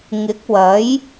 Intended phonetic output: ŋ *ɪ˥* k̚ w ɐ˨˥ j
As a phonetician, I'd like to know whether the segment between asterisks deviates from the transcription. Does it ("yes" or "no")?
yes